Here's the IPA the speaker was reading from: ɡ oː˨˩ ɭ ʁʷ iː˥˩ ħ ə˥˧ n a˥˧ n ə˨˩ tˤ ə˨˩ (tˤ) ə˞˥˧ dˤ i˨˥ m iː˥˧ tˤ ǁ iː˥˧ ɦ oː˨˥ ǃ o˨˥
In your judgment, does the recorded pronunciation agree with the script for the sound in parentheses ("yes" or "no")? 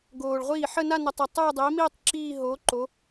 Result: yes